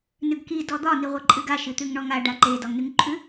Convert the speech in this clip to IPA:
n ʉ ɡ k i d ɔ d̪ ɒ n i ʁʷ e ǃʼ ɨ ɡ a ʃ ɨ t̪ ʉ ŋ ɳ ɔ ŋ a ɖ a ǃ e d ɒ ŋ n ʉ ŋ ǃʰ ʉ

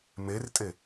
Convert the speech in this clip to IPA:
m e r tʼ e

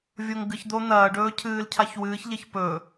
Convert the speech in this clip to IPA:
vʲ o ŋ ɡ ɨ ç d̪ o n̪ ɐː ɖ ɵː cʰ ɨː l cʰ a ç w ɨː ç ʎ e ç p ɵ

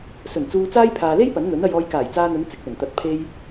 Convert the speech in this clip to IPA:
s ɵ˨˩ n t͡s uː˧ t͡s aː˥ j pʰ aː˨ l e˥ j p ɐ˨˥ n n̪ ɵ˨˥ n ɐ˧ j ɔː˧ j k aː˨˩ j t͡s aː˧ n̪ ɵ˨˧ n t͡s ɪ˨ k̚ l ɵ˨˩ n t̪ ɐ˨ t̚ pʰ e˧ j

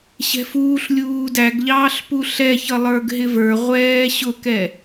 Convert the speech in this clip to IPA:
ɕ ɛ̤ f uː ɬ lʲ uː d æ ɡ ʎ ɑː ɬ p u ɬ ɛ ç ʌ lˠ ə˞ ɡ ɦ ɪ v ə˞ ʁʷ ɛː ɕ ʊ k ɛ

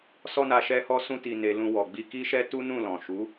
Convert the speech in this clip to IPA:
s ɔ˧ n a˨ ʃ ɛ˧ h ɔ˧ s ũ˧ t i˨ n e˨ l ũ˧ w ɔ˨ ɡ͡b i˧ k i˦ ʃ ɛ˦ t u˦ n ũ˦˨ l ɔ̃˨ ʃ u˨˦

